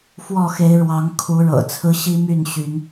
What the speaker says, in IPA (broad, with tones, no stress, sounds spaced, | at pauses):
f w ɔ˥˨ x e˨˦ ɪ̯ ɻ w ɑ˨˦ ŋ kʰ u˨˦ ɻ ɤ̰˨˩ t͡sʰ ɹ̩˦ ɕ i˦ m y˥˨ n ɕ y˨˦ n